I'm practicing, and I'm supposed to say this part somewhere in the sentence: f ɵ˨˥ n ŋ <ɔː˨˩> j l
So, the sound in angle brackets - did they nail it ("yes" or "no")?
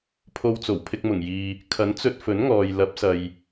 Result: no